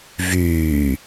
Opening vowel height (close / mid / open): close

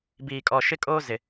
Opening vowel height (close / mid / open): close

